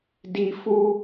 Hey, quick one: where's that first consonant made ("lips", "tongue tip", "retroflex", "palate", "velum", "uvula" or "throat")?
tongue tip